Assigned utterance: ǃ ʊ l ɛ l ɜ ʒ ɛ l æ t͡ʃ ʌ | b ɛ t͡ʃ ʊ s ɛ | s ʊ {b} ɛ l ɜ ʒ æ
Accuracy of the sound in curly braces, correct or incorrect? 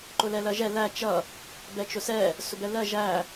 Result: correct